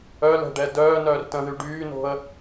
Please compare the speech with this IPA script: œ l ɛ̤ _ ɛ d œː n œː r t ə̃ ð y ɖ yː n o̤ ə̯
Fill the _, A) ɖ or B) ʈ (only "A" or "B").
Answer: A